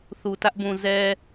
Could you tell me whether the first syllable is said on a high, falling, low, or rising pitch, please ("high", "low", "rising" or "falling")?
low